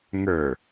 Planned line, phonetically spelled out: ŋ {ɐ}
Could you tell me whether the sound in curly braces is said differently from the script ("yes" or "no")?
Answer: yes